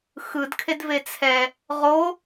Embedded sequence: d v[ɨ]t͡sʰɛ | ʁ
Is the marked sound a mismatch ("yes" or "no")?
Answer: yes